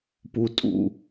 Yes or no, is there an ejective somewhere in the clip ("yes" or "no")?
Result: yes